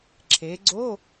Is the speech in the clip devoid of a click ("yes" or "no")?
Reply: no